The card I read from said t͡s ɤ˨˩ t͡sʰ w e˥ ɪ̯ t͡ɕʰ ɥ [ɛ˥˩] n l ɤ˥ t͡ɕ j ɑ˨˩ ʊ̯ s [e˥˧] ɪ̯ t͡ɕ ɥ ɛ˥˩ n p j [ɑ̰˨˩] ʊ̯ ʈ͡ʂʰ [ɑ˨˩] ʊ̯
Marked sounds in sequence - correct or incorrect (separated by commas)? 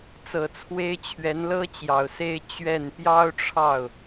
incorrect, correct, incorrect, incorrect